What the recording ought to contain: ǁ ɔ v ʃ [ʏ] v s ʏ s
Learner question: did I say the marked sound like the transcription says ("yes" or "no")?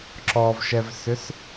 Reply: no